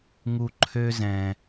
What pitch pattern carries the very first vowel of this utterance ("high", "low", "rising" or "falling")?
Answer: low